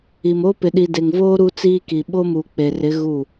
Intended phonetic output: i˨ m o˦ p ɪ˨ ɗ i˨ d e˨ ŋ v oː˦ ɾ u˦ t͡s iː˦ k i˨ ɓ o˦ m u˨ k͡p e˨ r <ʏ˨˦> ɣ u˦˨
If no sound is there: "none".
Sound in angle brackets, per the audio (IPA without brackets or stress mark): ɪ˨˦